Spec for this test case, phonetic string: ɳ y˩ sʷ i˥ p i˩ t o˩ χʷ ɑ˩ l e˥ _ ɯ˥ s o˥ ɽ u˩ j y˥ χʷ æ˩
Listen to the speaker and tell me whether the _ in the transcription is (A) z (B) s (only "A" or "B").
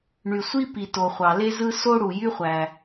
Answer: A